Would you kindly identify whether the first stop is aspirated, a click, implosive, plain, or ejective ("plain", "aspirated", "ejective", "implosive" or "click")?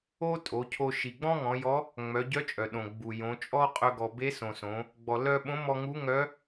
ejective